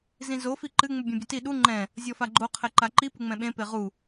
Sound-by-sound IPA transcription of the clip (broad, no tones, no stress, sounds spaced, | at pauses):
z ĩ z o f i ǃ ɨ ŋ͡m u bʲ õ bʲ ɘ t i ɗ u ŋ͡ǃ ɛ̃ | zʲ ɔ f a ɡ͡ǃ o qʰ ɛ ǃ a ǃ i p ɨ ŋ͡m ɛ̃ ɓ ẽ p e ʁ u